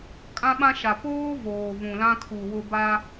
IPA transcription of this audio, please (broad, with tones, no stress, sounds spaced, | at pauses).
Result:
kʼ ã˦ ɓ ã˦ ʃ a˨ p oː˦ v oː˨ v ũ˨ l ã˦ kʰ u˨ w ʊ˨ b a˦